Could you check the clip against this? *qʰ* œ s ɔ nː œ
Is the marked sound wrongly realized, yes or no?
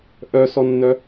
yes